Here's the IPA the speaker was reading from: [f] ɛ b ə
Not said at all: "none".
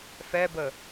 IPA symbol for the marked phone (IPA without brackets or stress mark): f